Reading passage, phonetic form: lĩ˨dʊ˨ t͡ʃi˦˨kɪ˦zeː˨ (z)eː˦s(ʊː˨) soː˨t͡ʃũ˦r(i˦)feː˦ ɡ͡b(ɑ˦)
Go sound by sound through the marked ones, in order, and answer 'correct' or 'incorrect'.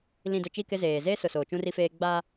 correct, incorrect, correct, incorrect

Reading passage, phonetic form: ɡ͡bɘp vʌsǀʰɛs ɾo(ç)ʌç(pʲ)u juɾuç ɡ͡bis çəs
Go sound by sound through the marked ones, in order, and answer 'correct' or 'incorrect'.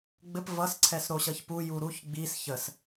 incorrect, incorrect

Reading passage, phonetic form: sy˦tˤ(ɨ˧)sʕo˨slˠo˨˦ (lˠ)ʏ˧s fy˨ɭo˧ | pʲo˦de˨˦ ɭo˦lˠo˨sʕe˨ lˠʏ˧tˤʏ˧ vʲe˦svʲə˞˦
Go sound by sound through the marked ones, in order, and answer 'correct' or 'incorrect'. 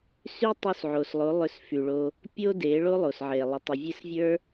incorrect, correct

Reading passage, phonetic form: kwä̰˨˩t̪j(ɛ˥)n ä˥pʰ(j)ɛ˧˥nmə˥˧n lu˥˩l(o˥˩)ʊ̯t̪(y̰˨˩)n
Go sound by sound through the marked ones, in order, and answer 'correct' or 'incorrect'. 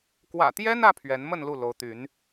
correct, incorrect, incorrect, incorrect

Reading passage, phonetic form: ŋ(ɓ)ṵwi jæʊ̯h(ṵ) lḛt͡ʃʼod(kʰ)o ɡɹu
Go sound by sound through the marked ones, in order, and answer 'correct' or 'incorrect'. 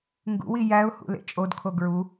incorrect, correct, correct

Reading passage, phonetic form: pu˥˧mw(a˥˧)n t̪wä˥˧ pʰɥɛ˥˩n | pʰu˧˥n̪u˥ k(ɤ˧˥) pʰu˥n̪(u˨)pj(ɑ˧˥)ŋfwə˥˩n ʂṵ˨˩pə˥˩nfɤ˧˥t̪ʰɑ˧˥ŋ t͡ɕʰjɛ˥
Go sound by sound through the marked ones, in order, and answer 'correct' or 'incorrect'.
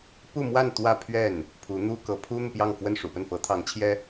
correct, correct, correct, incorrect

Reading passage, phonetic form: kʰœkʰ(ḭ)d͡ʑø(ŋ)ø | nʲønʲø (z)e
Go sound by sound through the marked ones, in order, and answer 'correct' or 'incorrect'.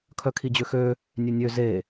incorrect, incorrect, correct

